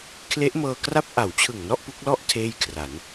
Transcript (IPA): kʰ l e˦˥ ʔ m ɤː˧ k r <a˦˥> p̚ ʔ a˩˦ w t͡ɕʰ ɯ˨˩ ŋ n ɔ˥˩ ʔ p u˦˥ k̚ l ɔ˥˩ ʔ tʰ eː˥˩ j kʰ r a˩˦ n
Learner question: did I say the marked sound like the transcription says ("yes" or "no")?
no